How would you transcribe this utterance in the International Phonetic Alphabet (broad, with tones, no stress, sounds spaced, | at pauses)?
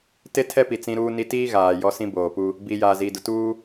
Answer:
t e˦ tʰ ɛ˦ p i˨ t͡s ĩ˦ ɾ uː˦ n i˦ t iː˦ ɣ aː˨ j ɔ˦ s ĩ˦ b oː˨ p u˦ | b i˨ j aː˨ z iː˨ d ʊ˨ t uː˦